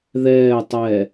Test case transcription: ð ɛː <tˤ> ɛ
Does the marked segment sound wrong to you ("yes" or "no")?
no